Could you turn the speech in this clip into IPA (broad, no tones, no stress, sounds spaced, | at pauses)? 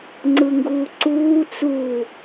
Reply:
ŋ͡ǀ ɯ ŋ ɡ uː ǀ uː t͡s u